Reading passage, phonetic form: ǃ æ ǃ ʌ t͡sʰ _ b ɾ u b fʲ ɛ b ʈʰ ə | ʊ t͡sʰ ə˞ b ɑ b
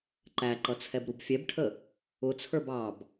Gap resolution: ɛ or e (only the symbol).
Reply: ɛ